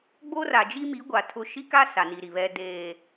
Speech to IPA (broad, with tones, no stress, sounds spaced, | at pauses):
ɡ͡b o˦ r a˨ d͡ʒ i˦ m i˨˦ ɡʷ a˨ tʰ ʊ˦ ʃ i˦ k a˦ s a˨ n i˨ ɾ i˨ β ɛ˨ d eː˨